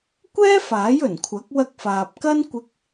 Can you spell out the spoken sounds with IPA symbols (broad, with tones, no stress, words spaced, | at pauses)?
kʷɛː˥faː˨˥jɵ˨˩nkʷʰɐ˨˥k̚ wɐ˧k̚faː˨p̚kɐ˥n kʷɪ˥k̚